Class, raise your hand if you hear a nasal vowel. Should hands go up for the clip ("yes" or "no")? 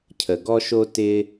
no